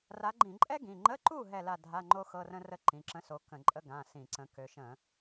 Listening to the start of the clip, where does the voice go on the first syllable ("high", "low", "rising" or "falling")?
rising